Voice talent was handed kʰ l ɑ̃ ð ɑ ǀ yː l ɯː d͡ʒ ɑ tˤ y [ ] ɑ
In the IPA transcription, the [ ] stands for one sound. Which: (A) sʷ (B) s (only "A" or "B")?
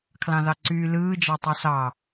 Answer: B